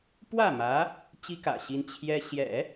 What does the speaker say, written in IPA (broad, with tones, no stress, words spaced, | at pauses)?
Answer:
pwä˥˩mä˧˥ | t͡ɕi˥kä̰˨˩ɕi˧˥n t͡ɕʰjɛ˥ ɕjɛ̰˨˩˦